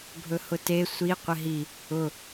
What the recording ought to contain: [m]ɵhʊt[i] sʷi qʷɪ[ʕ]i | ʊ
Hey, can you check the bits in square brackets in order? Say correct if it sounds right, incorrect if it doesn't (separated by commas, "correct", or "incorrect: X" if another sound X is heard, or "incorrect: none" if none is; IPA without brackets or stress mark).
incorrect: bʱ, incorrect: e, incorrect: ɦ